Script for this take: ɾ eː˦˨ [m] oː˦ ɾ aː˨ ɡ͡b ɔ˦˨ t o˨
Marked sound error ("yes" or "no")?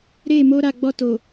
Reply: no